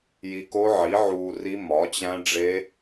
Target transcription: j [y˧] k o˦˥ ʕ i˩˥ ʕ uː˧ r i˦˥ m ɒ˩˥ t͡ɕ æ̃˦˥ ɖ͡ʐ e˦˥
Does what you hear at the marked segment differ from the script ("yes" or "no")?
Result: yes